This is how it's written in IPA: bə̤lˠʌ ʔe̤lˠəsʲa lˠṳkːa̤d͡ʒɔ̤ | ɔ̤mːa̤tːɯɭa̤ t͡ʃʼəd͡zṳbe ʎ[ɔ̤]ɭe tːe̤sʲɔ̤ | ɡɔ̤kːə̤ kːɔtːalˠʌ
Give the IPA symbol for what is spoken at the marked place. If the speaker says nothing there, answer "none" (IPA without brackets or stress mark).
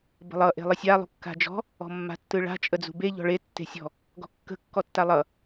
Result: ɔ̤